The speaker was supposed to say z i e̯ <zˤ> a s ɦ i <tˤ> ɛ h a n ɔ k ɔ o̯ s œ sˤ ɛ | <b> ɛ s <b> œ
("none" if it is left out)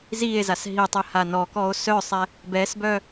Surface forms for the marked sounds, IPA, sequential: z, tˤ, b, b

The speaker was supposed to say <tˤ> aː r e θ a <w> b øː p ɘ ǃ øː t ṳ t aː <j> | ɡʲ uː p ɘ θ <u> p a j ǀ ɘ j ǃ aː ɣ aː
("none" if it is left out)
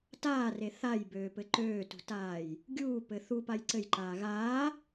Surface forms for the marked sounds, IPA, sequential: t, j, j, u

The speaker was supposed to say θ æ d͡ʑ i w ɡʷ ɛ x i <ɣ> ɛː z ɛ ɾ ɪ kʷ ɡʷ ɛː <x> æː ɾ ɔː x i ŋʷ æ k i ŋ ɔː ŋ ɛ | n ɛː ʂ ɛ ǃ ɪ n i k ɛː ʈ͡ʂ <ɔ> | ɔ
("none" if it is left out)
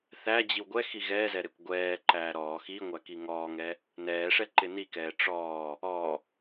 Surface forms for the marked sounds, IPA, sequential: ɣ, ǃ, ɔː

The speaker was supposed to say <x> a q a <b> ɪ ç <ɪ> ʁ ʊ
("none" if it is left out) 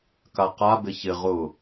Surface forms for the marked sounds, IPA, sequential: k, b, ɪ

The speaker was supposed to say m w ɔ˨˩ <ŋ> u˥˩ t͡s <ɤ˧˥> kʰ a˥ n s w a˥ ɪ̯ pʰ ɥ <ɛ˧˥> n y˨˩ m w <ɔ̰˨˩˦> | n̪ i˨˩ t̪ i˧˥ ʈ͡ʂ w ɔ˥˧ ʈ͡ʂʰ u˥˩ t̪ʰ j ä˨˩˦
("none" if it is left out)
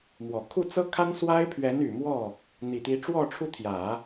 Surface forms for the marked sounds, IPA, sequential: kʰ, ɤ˥, ɛ˧˥, ɔ˥˩

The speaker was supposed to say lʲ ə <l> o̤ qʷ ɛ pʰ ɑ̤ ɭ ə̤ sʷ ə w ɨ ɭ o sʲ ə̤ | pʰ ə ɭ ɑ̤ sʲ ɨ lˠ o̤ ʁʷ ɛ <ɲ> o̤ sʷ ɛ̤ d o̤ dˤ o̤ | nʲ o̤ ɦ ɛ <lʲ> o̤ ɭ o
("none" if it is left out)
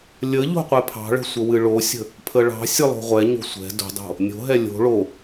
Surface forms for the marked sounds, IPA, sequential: ʎ, ɲ, lʲ

